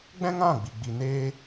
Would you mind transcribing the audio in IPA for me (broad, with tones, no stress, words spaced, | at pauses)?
ɡ͡bɛ̃˦ŋã˦˨ɡ͡bi˨ ɡ͡bi˧neː˦